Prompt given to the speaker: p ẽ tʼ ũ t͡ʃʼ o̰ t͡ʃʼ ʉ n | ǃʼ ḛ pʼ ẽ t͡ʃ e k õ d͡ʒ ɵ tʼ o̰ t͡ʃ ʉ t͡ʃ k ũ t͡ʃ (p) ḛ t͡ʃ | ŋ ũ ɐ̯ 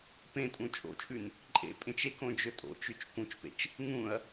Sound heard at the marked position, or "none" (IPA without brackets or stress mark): p